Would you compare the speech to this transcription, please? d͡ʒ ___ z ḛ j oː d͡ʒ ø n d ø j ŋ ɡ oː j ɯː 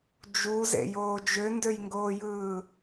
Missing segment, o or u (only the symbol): u